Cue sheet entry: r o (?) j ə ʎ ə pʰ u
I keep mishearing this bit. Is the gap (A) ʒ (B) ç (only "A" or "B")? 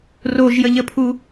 A